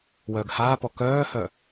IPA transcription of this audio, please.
w œː ɡ h aː p ɔ k œː h œ

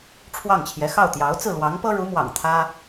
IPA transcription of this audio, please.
ʈ͡ʂʰ w ɑ˥˩ ŋ t͡ɕʰ j ɛ˧˥ x ɑ˥˩ ʊ̯ t̪ j ɑ˧˥ ʊ̯ t͡s ɹ̩˥˩ l w ɑ˧˥ ŋ p ɤ˥ ɻ u˧˥ m w ɑ̰˨˩ ŋ t̪ʰ ä˥

